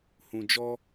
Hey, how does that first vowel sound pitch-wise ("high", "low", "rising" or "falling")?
low